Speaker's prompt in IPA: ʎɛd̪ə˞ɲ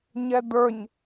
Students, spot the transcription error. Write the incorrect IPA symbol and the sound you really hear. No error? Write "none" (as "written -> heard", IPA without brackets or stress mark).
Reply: ʎ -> ɲ